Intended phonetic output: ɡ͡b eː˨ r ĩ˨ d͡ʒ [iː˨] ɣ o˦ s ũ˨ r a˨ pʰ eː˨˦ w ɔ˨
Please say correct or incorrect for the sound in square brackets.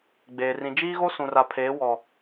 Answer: incorrect